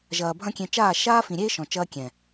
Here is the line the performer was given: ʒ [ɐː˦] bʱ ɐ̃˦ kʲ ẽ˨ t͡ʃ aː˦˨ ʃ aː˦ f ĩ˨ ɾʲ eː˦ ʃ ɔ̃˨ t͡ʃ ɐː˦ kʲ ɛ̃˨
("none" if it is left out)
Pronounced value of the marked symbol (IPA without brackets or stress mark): ɐː˨